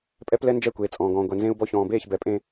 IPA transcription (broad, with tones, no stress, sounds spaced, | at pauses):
pʼ ɛ˦ p l ɛ˦ n d͡ʒ ɛ˦˨ kʷ eː˨ t͡sʼ ɔ̃ː˨ ɡ ɔ̃ː˨ ɡʷ ɛ˨ n z ẽ˦ u̯ b ɔ˦˨ ç ɔ̃ː˨ b eː˦˨ ç b ɛ˨ pʼ ẽ˦